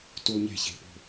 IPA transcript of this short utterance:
t u˥ lˠ ɲ e̤˥ ç e̤˧˥˧ p o̤˥˧

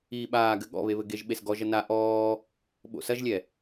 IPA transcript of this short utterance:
iː ɓ aː ɡ ɘ ɠ ɔ̰ β e β ɘ ɡ e ʒ ɓ e s ɡ ɔ ʒ ɐ n a ʔ ɔː | ɓ o̰ s ɐ ʒ lʲ ɛ

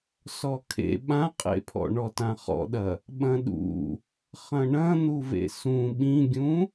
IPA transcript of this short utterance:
s ɔ kʰ ḛ ɓ ã qʼ ḛ pʰ ɔ̰ ɳ ɔ t ã χ ɔ̰ ɗ ɐ | ɓ ɐ̃ ɗ ṵ | χ ɐ̃ ɳ ɐ̃ n̪ u v ḛ s ũ ɓ ĩ ɡʲ ũ

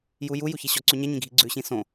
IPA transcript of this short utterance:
j u j u j u ç i ɕ ɔ ǀ ʉ ɲ ɛ ɲ ĩ ɡʱ i ɡ͡ǀ ʉ ɕ ĩ s õ

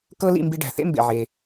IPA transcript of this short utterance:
k ɤ˥ l ḭ˧ m b i˧ ɖ æ̤˩ θ ḛ˥ m b ḛ˩ ʕ e˩

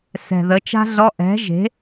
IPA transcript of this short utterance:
s ɛ̤˨˩ ð ə˩˥ t͡ʃ a̤˥ ɮ ɔ˧˥˧ ʔ ɛ̤˩˥ ʒ e̤˩˥

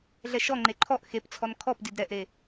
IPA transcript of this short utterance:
ɮ ɛ ʃ ɔ ŋ͡ǃ e ǃʰ ɔ ʔ x e p t͡sʰ ɔ n kʰ ɔ p d i d ɾ ɛ ʔ ɾ e

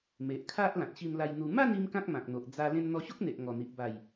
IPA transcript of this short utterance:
m e˨ ʔ kʰ a˦ ʔ l ã˨ t̚ ɕ i˧ m l a˧ j n̪ u˧ m a˥˧ n i˦ m k ã˦ k̚ m ã˨ k̚ n̪ o˨ ʔ d͡z a˧ l ẽ˧ n n̪ ɔ˧ ɕ o˦ k̚ n̪ e˨ ʔ ŋ ɔ˨˩ n̪ i˨ ʔ b a˨˩ j

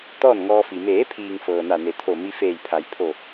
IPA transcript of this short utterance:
t̪ ɔː˥˨ n ŋ ɔː˧ f i˩ m eː˩˧ pʰ iː˩ ŋ f ɤː˩ n a˧˩ n e˩˧ t̪ʰ o˧˩ m i˧ f eː˧˩ j pʰ a˩˧ j pʰ o˧˩

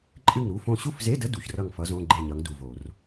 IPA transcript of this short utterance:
ǃʼ ɨ˥˨ ŋ ɾ u˧˥˧ f õ˥˨ ɕ u˥˨ f z e˧˥˧ d ə˧˥˧ d u˨˩˦ ç r ʌ˥˨ ŋ f ʌ˧˥ z õ˧˥˧ ɡ͡ǃ e˥˨ ɲ ʌ˧˥ ŋ d u˩˧˩ v o˨˩˦ r

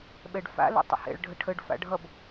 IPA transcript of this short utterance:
ɓ ɛ ɖ f a̰ l ə̰ tˤ ə̰ h ɛ̰ ɭ ɖʱ ə ʈʰ ə ɖ f a̰ ɖʱ ʌ b

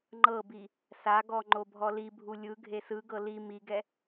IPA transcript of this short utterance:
ŋ͡ǃ ɤ b i | s a ɡ ɔ ŋ͡ǃ o bʱ ɔ l i bʱ u lʲ ɯ ɡʱ e s ɯ ɡ ɤ l i m i ɡ ɛ

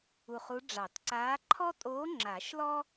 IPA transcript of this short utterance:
u˧˩ χ u˧˥ ɖ͡ʐ ɑ˨˩˦ t ǀ aː˧˥ ǃʰ ɔ˥ tʼ oː˧˥ ŋ͡ǁ a˨˩˦ ʃ l ɔ˥

